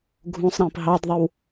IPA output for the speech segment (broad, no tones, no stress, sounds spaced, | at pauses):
ɡʱ ũ sˤ ɾ ĩ p ɦ ɑ d ðˤ ɘ w